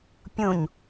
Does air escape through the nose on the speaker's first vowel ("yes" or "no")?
yes